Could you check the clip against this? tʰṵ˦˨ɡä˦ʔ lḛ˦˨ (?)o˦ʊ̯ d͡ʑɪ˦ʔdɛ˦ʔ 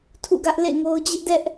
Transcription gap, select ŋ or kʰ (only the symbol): ŋ